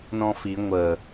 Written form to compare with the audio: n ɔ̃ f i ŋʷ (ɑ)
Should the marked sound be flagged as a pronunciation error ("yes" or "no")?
yes